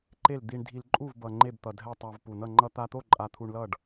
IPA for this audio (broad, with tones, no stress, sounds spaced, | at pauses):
ǃ e˥˩ l d̪ i˧ ɳ dʱ i˧ l ǃʼ u˥˩ v b ʌ˨˩ ŋ͡ǃ e˥˩ b t̪ ʌ˨˩ dʱ ɛ˥˩ tˤ a˧ v p u˨˩ n ʌ˥˩ ŋ͡ǃ ʌ˧ t̪ a˧ t̪ o˥˩ ǃʼ a˧ t̪ʰ u˧ ɳ l ʌ˥˩ ɖ